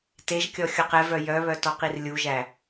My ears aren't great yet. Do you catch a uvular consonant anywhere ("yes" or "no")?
yes